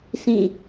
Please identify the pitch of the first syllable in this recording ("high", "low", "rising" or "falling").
falling